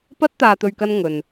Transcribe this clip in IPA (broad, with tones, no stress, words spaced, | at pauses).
pɐ˥t̚t̪aː˧t̪ɵ˧ɥ kɐ˥nŋɵ˧n